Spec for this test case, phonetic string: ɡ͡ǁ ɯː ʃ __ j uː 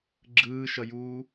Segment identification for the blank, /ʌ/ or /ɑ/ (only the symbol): ʌ